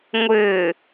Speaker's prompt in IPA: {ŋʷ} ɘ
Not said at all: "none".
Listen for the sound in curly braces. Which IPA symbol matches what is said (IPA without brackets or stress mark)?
ŋʷ